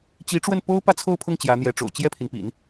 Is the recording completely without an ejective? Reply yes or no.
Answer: yes